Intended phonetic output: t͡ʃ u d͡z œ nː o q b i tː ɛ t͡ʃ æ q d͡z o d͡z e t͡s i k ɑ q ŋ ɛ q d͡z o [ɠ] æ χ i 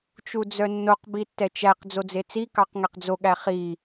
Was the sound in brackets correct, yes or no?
yes